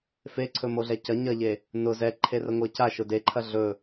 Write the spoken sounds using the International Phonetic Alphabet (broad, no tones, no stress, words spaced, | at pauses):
feǀʰɵmoɮɛ cɐ ɲɐʎe | nʊ zɛǃʰe rəŋʷeca ʃʊdeǃʰɐ ɮɵ